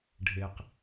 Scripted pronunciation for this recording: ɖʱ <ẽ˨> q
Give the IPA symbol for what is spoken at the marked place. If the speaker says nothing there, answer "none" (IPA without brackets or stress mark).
e˨